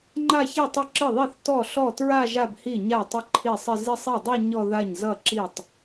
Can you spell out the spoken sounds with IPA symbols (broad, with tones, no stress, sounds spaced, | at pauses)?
ŋ͡ǃ a˥˧ ç i˥˩ tˤ ɪ˥˩ ǁ ɪ˥˩ ðˤ i˥˩ θ t ɔ˥˩ ɬ ɔ˥˩ t ɹ a˥˧ ʒ a˥˧ b h i˥˩ ɲ a˥˩ tˤ ɪ˥˧ ǃʰ i˥˩ sˤ ɪ˥˧ z ɪ˥˧ sˤ i˥˩ dˤ i˥˧ ɲ ɔ˥˧ ð a˥˩ ɲ z ʌ˥˩ ǁ i˥˩ tˤ